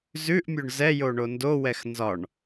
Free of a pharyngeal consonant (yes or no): yes